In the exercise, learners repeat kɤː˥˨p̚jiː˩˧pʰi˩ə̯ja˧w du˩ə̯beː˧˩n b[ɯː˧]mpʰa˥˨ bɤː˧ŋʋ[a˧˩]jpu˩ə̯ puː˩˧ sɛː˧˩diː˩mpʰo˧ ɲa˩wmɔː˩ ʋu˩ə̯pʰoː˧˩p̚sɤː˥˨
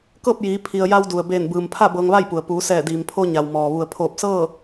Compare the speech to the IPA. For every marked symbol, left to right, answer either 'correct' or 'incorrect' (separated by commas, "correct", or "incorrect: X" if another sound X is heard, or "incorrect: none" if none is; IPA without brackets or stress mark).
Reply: incorrect: ɯː˩, incorrect: a˥˨